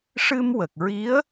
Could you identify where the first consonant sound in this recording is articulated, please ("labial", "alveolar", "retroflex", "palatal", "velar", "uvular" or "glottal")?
retroflex